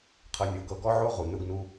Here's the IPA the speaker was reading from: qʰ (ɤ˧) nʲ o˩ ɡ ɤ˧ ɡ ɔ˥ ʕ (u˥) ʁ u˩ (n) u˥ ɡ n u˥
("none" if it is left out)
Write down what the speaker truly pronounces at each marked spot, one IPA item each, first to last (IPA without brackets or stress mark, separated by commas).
ɤ˧, o˥, n